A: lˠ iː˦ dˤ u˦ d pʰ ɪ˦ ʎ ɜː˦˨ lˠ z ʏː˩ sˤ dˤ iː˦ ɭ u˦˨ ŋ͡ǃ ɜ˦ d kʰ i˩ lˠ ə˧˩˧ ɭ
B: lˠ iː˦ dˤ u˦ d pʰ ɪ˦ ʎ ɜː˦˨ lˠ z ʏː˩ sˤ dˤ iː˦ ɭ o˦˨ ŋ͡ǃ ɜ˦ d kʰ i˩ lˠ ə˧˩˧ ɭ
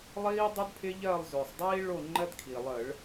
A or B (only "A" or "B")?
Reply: B